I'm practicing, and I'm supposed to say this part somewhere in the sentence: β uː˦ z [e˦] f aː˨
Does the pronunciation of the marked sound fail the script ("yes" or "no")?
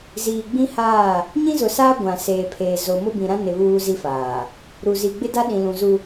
yes